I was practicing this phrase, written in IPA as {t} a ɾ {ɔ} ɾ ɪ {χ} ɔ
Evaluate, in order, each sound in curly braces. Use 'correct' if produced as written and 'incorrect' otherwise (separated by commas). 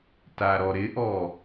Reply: correct, correct, incorrect